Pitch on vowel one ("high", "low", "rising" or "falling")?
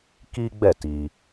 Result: high